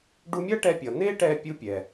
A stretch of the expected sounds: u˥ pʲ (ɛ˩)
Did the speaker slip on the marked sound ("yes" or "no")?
no